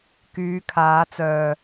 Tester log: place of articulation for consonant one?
velar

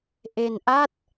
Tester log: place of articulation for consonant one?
glottal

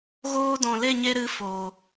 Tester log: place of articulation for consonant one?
velar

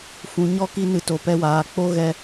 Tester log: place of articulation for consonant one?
labial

